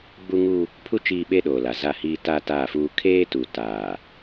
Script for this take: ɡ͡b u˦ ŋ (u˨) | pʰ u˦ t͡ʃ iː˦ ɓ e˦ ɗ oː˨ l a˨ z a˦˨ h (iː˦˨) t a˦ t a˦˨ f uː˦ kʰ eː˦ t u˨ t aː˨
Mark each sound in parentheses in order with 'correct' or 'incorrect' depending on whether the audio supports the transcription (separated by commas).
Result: incorrect, incorrect